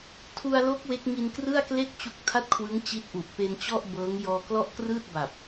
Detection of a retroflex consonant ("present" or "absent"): absent